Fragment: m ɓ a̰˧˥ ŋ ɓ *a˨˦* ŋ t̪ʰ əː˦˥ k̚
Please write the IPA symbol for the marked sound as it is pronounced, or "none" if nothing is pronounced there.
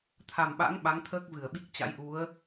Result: a˨˦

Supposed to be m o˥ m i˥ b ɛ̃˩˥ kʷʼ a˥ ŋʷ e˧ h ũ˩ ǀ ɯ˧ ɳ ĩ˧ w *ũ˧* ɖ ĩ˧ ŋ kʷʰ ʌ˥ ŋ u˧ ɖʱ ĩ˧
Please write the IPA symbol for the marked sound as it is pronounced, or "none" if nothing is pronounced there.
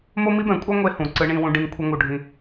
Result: ũ˧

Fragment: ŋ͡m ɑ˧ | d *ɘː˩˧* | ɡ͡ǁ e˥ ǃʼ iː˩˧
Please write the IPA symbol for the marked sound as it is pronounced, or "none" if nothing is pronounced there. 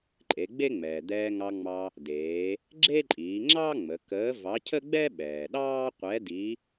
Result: eː˩˧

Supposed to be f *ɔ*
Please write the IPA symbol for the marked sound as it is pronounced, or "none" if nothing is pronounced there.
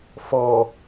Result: ɔ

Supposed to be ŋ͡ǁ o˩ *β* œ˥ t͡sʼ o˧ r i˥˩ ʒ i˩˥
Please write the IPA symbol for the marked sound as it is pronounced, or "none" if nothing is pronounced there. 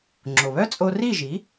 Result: β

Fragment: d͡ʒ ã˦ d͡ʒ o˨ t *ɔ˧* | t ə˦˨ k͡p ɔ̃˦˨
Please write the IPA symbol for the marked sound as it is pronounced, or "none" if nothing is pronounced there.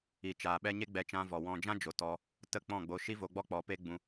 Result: ɔ˧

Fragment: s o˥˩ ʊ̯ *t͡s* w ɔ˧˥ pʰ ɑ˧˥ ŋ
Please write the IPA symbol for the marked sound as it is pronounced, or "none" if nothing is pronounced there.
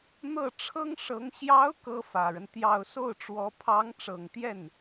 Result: ʈ͡ʂ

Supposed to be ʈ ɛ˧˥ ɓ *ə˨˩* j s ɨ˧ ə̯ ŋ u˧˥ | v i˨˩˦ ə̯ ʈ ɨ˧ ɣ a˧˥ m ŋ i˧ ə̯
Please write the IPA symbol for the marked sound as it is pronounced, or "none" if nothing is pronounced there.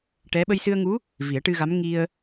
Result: ə˧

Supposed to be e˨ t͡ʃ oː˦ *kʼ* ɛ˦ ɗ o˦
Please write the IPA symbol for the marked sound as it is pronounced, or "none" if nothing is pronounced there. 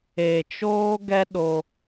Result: ɡ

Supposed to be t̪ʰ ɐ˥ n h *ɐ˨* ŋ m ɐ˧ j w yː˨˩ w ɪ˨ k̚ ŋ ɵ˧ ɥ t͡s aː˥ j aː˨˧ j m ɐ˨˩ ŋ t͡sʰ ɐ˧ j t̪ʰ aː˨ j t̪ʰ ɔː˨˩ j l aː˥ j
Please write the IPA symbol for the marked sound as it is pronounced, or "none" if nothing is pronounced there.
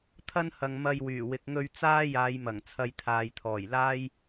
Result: ɐ˨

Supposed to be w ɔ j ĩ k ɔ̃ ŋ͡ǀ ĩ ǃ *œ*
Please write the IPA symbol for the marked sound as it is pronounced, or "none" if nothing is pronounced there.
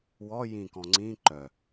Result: œ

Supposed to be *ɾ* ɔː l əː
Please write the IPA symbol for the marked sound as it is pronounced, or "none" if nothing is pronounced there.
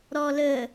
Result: ɾ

